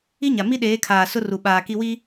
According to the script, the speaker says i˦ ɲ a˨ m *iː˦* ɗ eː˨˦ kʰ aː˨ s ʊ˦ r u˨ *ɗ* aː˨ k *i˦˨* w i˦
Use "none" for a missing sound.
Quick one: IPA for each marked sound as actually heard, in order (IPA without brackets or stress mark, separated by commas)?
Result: i˦, ɓ, i˦